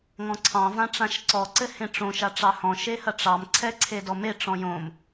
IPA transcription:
ŋ ɔ̃ ǀʰ ɑ̃ v ã ʈ͡ʂ ã ʃ ǀ ɔ ǀ ɘ h ẽ ʈ͡ʂ õ ʃ a ʈ͡ʂ ɑ h ɔ̃ ʃ e h ɐ ʈ͡ʂ ɑ m ǀʰ ɛ ǀʰ e d ɔ m e ʈ͡ʂ ɔ̃ j õ m

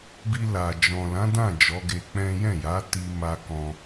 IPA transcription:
b i˧ l a˨ d͡ʒ ɔ̃˨ l ã˨˦ d ã˦˨ d͡ʒ ɔ˨˦ ɡ e˧ k͡p ɛ̃˦ j ɛ̃˦˨ j a˨˦ t i˧ m a˧ k ɔ̃˧

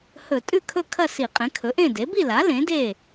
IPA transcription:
h ɵ˧˩˧ tʼ ʉ˥˨ kʰ ɵ˥˨ kʰ ɐ˥˨ s i˧˩˧ qʼ ẽ˩˥ kʰ ɵ˩˥ ʔ ẽ˥˨ d e˩˥ b i˥˨ l a˩˥ l ẽ˩˥ d e˥˨

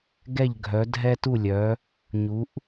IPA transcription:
ɡ ɛ˧˩ ʎ ɡʱ œ˩˧ dʱ ɛ˧ t u˧˩ lʲ œ˩˧ | ɲ u˩˧ ʔ

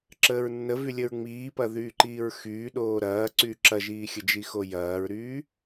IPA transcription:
ǁ əː ɹ nː ə v y lʲ ə ɹ ŋ͡m iː p ɐ ð yː ǃ iː ɹ x yː ɗ oː ɾ ɐː ǀ yː ǁ ɐ ʒ iː xʲ ə d͡ʒ i x o j ɐː ɹ ɾ yː

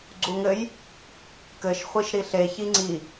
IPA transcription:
ɡ͡ǀ u ŋ ɘ j | k ɘ ʃ χʷ i ʃ ɾ i ɬ e ç i ŋ͡ǀ i

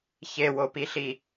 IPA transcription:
ç e w o p i ɬ i

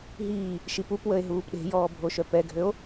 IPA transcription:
ɦ iː | ʃ i p u p w ə e̯ ɦ uː p ɗ e̤ j ɔː bʱ o ʃ œ p ɛ ɡʱ ø o̯

